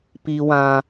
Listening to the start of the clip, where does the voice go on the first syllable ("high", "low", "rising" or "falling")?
high